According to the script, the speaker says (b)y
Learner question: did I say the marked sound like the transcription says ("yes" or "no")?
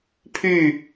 no